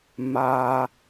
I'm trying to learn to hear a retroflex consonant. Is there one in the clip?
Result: no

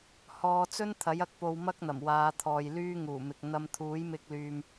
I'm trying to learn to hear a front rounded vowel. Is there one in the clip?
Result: yes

